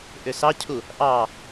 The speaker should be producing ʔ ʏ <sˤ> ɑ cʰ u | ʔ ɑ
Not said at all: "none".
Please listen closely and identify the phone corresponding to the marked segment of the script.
s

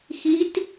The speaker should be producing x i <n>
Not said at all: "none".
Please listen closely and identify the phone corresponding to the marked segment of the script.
t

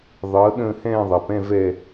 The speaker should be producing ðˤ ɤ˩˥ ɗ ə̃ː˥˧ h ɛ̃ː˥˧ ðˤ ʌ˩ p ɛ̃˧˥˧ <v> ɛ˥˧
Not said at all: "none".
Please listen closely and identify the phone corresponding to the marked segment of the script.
v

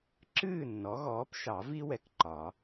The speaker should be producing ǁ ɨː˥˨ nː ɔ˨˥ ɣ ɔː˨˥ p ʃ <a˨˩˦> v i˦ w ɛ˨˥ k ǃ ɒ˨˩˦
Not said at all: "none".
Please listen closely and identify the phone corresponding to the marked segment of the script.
ɑ˨˩˦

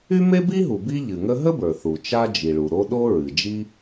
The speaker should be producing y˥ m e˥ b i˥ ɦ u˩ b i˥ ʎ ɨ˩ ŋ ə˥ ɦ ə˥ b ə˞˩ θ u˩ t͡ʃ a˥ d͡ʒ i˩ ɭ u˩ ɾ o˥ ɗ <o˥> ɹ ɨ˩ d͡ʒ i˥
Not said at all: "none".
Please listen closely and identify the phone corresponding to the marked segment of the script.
o˥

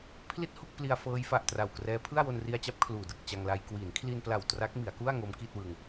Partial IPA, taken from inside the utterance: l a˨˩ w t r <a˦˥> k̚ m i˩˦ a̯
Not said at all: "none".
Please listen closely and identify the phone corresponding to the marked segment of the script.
a˦˥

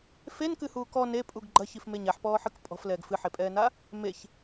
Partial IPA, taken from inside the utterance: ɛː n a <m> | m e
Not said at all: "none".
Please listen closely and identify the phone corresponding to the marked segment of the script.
none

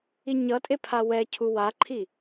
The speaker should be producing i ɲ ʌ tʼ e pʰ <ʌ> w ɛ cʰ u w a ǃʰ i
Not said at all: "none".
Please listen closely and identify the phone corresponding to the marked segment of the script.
a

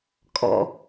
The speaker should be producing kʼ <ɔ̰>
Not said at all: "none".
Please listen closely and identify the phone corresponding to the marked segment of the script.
ɔ̰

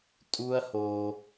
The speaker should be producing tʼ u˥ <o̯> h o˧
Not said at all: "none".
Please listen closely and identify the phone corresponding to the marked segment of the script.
ɐ̯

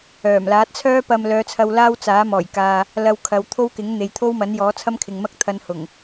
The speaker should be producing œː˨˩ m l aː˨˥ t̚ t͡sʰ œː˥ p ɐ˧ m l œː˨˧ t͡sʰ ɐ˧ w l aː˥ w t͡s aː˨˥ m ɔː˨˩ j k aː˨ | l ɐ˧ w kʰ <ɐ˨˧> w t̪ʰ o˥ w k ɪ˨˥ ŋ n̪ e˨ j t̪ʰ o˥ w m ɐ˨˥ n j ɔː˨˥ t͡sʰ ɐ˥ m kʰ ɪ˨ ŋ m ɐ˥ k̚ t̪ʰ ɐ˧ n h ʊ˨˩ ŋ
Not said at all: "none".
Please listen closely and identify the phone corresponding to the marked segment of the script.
ɐ˨˧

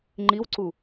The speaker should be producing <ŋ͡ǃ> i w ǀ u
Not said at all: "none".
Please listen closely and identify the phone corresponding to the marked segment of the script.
ŋ͡ǃ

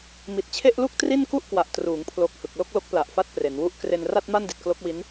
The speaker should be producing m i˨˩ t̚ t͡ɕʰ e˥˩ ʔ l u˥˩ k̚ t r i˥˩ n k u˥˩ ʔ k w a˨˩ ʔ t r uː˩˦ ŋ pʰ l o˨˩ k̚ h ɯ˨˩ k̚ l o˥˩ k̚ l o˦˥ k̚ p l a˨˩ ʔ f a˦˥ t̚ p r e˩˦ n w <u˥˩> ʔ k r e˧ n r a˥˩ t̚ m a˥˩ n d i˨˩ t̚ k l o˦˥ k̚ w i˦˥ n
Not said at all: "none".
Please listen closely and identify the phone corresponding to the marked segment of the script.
u˥˩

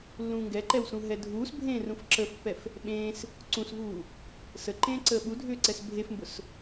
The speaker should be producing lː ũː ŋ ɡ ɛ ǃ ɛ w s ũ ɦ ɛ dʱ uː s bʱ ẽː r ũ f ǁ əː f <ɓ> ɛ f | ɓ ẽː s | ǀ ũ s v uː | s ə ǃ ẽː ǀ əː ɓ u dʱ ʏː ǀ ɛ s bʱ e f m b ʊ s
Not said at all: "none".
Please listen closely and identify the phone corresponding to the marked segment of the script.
pː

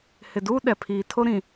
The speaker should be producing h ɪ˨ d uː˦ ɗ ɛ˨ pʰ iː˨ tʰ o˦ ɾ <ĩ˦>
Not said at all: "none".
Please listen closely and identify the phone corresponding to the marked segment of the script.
ĩ˨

